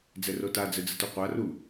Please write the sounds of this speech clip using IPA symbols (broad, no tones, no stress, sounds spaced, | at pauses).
d͡z ɛ r o t a d͡z ɘ d͡z ɘ t u qʷ a r u